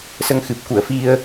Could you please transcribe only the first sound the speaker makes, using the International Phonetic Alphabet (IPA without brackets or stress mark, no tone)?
s